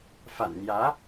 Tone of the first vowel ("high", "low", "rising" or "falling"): low